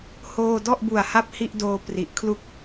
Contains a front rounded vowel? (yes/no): no